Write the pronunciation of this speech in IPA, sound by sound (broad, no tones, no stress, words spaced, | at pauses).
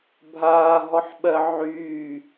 bʱaːɦɔħɓɜ ʕyː